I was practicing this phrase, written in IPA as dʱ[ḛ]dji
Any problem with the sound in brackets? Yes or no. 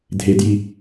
yes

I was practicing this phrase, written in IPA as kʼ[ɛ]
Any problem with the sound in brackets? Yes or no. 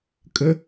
yes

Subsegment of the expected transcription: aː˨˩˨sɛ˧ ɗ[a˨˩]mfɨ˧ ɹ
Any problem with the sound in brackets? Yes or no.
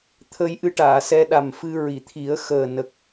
no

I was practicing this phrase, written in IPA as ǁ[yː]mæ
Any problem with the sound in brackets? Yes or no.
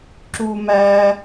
yes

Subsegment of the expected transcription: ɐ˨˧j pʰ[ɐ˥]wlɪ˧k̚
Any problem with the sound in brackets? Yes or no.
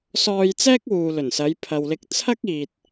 yes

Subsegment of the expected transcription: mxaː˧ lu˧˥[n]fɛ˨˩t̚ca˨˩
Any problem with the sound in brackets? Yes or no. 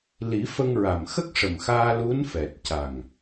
no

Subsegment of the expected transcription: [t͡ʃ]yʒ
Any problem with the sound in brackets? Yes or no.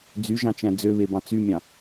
yes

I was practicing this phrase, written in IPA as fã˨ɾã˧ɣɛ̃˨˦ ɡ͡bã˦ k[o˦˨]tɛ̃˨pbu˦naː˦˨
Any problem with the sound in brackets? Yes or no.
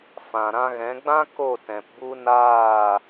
no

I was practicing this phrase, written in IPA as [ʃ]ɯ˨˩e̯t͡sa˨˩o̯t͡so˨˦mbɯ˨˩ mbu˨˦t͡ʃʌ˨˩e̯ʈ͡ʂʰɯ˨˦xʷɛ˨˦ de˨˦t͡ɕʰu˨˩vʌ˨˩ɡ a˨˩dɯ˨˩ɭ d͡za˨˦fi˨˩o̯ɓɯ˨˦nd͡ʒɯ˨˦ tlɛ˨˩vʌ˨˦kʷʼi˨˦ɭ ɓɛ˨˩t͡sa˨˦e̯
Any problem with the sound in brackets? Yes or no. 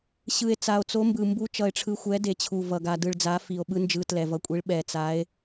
yes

